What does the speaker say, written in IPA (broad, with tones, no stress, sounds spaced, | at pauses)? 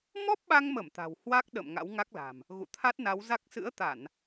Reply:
m ɔ˦˥ p̚ ɓ a˧ ŋ m ə˧˩ m t̪ a̤˨˩ w h w a˦˥ k̚ ɗ ə̰˧˨ m ŋ a̰˧˥ w ŋ a˦˥ k̚ l a̤˨˩ m | ɣ ṵ˧˨ t̪ʰ a˦˥ t̚ n a˨˦ w z a˦˥ k̚ s ɨ̰˧˥ ə̯ t̪ a˧˩˨ n